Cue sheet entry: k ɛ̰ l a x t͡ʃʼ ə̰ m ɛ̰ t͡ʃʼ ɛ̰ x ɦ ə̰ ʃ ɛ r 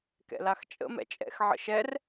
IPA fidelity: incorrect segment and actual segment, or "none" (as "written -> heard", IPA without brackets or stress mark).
ɦ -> ʕ